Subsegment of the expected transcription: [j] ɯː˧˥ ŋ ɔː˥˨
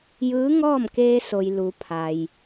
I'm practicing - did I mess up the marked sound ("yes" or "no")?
no